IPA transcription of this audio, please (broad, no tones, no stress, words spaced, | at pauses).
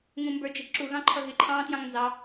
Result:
ŋũmbə˞d͡ʒiǁu ɣɑ̃ǃʰʌɣɪ ǃʰɑ̃ːtjɑ̃ŋnzɑ